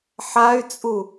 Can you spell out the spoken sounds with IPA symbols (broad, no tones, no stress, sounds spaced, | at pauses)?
ħ a y̯ t͡sʼ u